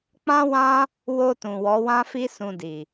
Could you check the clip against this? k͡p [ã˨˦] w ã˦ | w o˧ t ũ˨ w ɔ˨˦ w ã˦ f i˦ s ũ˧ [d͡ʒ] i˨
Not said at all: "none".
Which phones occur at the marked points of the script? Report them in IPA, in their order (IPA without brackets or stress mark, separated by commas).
ã˦, d